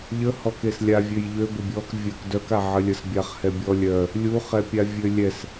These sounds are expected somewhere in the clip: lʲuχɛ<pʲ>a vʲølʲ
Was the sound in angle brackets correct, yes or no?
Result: yes